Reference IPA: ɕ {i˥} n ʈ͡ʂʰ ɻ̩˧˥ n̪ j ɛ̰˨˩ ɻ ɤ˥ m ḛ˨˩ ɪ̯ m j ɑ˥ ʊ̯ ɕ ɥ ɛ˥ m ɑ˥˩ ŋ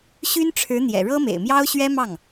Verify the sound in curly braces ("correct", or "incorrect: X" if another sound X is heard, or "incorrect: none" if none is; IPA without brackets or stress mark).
incorrect: y˥